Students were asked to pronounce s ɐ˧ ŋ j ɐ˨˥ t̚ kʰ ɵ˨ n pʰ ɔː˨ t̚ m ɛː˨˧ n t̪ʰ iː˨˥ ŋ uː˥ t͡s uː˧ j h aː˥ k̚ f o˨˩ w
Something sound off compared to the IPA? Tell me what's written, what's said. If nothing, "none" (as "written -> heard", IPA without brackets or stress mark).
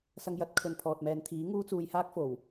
none